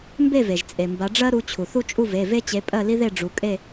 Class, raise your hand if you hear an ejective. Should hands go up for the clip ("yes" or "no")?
yes